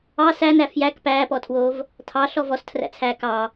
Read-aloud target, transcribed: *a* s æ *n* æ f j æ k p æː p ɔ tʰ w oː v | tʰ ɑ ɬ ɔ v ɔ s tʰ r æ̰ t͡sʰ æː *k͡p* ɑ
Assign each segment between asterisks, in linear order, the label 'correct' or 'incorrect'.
incorrect: ɑ, correct, incorrect: k

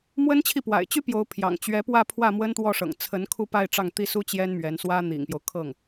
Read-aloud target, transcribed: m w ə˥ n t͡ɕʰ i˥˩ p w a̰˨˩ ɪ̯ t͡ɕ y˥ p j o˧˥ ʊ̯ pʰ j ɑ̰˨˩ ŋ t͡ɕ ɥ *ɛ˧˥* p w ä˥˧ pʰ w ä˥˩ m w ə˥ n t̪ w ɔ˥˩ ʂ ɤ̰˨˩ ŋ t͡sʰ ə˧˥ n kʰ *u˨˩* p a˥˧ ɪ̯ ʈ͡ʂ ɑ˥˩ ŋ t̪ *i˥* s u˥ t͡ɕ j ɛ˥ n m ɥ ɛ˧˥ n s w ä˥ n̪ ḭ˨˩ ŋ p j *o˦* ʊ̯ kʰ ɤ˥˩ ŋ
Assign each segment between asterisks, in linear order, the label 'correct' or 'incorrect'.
correct, incorrect: u˥˧, correct, correct

